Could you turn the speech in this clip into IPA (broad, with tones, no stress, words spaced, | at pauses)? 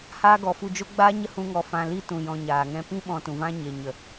haː˦ɡɔ˨fu˧ d͡ʒo˦ ɡ͡baː˦ɲə˦ hũ˦ŋɔ˧ fã˧li˦tũ˨ jɔ̃˧ɲaː˨ŋɛ̃˦ pĩ˦ ɓɔ̃˧tũ˨vã˦ ɲe˨ ɲə˨